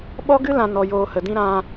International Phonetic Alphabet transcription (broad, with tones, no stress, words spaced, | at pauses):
ɓɔ˦ɡɨ˦ lã˧ nɔ˧joː˧hə˨ dĩ˧ ɾã˧